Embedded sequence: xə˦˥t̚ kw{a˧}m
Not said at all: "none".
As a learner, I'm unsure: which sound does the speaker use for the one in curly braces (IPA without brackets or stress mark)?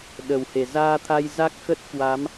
a˨˦